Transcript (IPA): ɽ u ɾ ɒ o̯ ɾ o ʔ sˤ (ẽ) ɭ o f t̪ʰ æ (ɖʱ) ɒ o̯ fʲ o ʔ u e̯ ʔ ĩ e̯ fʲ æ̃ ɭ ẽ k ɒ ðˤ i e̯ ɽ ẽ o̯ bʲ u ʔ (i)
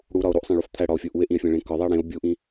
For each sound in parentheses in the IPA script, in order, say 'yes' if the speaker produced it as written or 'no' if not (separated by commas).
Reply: yes, no, no